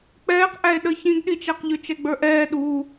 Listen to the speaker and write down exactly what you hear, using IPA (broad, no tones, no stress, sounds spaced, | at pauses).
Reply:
k͡p ɛː q ʔ æ e̯ ɗ ə ç ĩ ɡ ɗ i t͡ʃ æ q ʎ ʊ t͡ʃ ɛ ɡ͡b ə˞ ʔ ɛː ɗ u